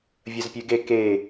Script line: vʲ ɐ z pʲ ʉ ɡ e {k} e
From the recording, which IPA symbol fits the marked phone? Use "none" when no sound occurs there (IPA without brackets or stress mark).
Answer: k